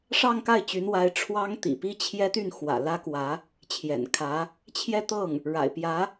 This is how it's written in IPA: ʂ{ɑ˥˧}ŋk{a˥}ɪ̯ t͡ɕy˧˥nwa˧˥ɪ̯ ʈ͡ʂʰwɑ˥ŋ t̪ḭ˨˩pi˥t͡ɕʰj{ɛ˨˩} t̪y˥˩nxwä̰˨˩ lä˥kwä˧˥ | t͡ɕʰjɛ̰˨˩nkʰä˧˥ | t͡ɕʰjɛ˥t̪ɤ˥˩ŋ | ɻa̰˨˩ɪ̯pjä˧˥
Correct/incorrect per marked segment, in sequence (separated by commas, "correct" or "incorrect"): correct, incorrect, incorrect